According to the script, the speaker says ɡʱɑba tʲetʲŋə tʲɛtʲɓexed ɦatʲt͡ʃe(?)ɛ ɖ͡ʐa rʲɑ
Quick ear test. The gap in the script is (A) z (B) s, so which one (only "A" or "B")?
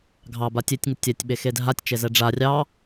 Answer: A